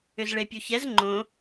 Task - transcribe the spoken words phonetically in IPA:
ʏ z ɭ e pʲ u ç ɛ z ŋ͡ǃ õ

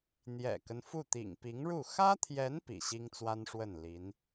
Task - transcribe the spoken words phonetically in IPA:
n̪ j ɛ̰˨˩ k ə˦ n f u˥˩ t̪ ḭ˨˩ ŋ p i˧˥ ŋ ɻ u˥˩ x ä˥ t̪ʰ j ɛ˧˥ n p ḭ˨˩ ɕ i˥ ŋ t͡s w a˥ n ʂ w ə˥˩ n l i˧˥ n

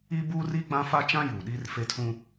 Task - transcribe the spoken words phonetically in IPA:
i˦ b uː˦ r i˦ ɡ͡b ã˦ f a˦ t͡ʃ ã˦ j uː˨ ɗ iː˦ r f e˦ tʰ ũ˦

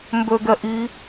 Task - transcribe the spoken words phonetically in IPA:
m b ø ɡ ɛ ʔ i

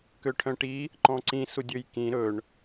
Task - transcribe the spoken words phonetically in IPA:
k ø ʈʰ œ̃ ʈ i | ǃ ɔ̃ ǀ ĩ s u dʲ ø j k ĩ ɾ ɵ ɳ

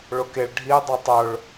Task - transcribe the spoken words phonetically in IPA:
ɭ ʊ k e ɭ ɖʱ i dˤ ɜ tˤ ʊ ɭ

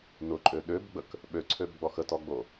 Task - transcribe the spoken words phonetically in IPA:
n ʊ ǃʼ ø ɗ ø b ɡ͡b ə k | ɓ ø ǀʰ ø b ɡ͡b ɔ x ə t ɔ ɡ͡b o

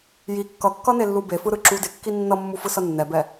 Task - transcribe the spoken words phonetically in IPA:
j i kː ʌ kː ʌ n e lː u b e f ɯ ɾ ɯ ǁ u d e kː i nː ʌ mː u f ɯ s ʌ nː ɛ b ɛ

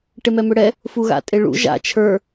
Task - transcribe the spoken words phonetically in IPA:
ʈ e m ɛ m ʏ ɽ ɛ | f u ɣ a̰ tʼ e ɭ ṵ ʒ a̰ t͡ʃʰ ə˞

